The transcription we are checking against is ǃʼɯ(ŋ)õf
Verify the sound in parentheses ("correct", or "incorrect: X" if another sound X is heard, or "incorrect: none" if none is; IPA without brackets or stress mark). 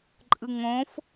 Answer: correct